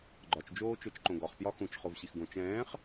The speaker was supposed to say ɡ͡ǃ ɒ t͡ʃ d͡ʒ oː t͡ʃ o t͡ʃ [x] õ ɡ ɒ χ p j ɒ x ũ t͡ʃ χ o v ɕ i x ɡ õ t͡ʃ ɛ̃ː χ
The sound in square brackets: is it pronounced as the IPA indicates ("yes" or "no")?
no